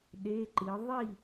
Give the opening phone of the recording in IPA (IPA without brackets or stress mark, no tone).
ɗ